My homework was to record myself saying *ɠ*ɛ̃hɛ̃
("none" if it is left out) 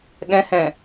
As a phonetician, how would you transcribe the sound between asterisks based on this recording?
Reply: ɠ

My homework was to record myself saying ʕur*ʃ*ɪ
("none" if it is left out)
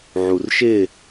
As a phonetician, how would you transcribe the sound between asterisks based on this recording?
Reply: ʃ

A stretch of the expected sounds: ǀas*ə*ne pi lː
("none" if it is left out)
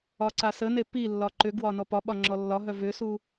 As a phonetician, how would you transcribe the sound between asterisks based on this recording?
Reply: ə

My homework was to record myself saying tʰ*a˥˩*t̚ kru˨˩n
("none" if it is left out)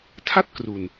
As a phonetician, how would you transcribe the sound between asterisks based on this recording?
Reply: a˥˩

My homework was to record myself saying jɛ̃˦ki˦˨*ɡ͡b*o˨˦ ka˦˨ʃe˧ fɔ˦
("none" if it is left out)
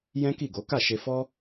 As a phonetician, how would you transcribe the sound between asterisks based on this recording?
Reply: ɡ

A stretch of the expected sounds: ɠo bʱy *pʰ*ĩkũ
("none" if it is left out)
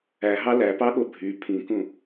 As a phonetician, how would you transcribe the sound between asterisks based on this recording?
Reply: pʰ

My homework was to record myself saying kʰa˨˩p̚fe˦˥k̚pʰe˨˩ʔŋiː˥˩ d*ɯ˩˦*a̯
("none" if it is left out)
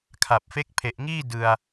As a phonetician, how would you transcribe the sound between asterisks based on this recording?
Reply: ɯ˧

